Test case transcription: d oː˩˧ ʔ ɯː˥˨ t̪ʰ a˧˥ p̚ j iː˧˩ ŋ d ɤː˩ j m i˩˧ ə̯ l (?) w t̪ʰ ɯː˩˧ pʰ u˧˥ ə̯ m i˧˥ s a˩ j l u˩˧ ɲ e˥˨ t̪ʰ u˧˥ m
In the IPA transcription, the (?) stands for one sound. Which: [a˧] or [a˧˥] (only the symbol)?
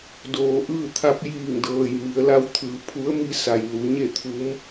a˧˥